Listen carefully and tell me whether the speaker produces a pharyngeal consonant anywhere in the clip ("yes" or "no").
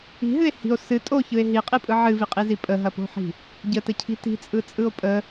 yes